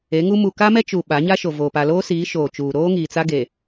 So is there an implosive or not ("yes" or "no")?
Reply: yes